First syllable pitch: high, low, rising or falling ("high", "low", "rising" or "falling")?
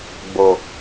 low